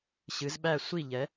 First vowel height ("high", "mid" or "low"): high